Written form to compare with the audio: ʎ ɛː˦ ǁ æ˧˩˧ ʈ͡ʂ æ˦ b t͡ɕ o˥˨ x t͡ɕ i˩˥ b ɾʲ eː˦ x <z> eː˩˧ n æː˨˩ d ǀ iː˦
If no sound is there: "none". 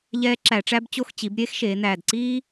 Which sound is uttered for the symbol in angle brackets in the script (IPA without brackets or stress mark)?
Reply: ʃ